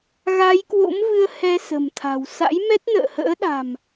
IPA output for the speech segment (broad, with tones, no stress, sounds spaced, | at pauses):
ɣ a˨˦ j k w o̰˧˥ m v ɨ˧ ə̯ h ɛ˧ s ə̤˨˩ m t̪ʰ a̤˨˩ w s a̰˧˥ j m ɛ˦˥ t̚ n ə̰ː˧˨ h ə̰ː˧˥ ɗ a̤˨˩ m